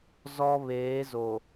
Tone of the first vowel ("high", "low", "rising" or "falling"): high